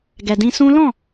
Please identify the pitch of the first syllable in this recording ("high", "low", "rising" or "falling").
low